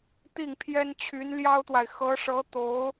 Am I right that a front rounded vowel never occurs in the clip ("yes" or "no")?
no